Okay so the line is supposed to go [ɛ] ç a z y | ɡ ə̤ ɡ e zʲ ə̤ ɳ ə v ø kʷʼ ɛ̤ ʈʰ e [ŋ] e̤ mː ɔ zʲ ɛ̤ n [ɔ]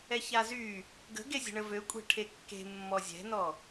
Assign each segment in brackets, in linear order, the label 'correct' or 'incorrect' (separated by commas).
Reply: correct, incorrect, correct